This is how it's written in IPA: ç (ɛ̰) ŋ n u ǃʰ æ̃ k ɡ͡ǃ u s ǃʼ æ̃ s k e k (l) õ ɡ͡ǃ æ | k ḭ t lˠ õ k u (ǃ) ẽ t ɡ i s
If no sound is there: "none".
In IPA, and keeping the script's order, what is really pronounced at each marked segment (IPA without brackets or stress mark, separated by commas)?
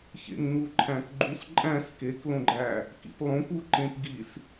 ḛ, l, ǃ